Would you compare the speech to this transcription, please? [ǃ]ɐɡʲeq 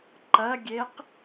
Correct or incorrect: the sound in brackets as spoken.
correct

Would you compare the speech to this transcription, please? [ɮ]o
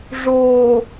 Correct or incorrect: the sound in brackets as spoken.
incorrect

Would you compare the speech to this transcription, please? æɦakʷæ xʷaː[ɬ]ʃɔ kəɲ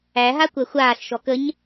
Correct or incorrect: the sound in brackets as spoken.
correct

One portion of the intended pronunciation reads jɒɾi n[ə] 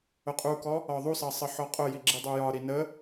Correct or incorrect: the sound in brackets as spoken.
correct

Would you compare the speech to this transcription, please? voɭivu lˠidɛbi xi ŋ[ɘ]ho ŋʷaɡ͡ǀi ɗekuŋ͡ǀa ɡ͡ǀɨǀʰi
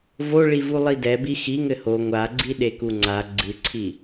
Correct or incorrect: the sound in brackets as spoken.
correct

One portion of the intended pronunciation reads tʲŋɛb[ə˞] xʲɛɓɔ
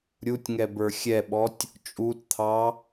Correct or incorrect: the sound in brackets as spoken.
correct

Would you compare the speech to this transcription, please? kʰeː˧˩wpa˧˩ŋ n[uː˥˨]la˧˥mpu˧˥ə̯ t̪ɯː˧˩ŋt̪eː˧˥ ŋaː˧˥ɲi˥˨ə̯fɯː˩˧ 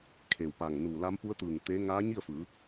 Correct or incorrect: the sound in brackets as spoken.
incorrect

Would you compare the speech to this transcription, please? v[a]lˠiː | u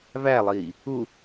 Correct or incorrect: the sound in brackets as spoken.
incorrect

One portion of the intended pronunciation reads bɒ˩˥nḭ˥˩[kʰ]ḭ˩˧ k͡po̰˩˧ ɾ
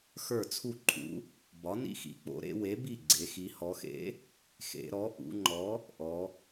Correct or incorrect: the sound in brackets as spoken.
incorrect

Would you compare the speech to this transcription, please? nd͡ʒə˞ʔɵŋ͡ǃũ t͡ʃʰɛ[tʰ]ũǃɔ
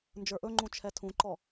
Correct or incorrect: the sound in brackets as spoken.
correct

